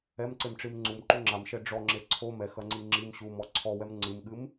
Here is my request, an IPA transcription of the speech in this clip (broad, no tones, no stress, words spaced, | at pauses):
ɛmǀemʈ͡ʂim ŋ͡ǀumǃu ŋ͡ǁamʃɛ ɖ͡ʐɔŋ͡ǁe ǀʰo mɛxɐŋ͡ǀi ŋ͡ǁim ɕumɔ ǀʰɔwɛm ŋ͡ǀɨmɠɨm